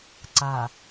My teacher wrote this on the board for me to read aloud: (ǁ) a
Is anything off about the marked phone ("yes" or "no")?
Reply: yes